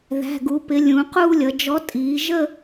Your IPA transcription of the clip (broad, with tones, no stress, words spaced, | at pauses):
ðæ̤˩˧˩ɡu˩˧pɪ˩˧ lʲũ˩˧quː˥˧lʲʌ˩˧ d͡ʒɔ˨˥tʼiː˩˧ʒə˥˧